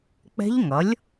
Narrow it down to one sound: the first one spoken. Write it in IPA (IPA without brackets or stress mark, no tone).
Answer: k͡p